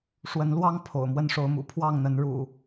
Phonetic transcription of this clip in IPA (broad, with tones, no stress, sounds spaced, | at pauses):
ʂ w ə˨˦ n l w ɑ˦ ŋ pʰ o̰˨˩ ʊ̯ m w ə˦ n ʂ o˨˦ ʊ̯ m ṵ˨˩ pʰ w ɑ˥˨ ŋ n̪ ə˨˦ n ɻ ṵ˨˩